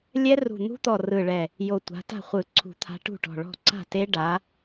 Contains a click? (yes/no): yes